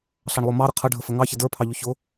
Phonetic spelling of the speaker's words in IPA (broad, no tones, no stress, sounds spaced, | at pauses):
ɬ ɑ ɳ lˠ ʊ m ɑ ɾ ə qʰ ʌ ɖʱ ə f ə ŋ ɑ ç ɪ d ə˞ pʰ ɑ ʎ ʊ ç ʊ